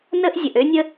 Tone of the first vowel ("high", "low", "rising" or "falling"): high